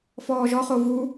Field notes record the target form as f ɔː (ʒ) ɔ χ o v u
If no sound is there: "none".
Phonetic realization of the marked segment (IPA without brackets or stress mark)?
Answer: ʒ